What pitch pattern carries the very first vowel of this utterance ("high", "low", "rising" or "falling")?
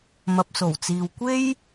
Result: low